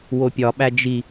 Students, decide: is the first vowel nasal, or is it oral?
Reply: oral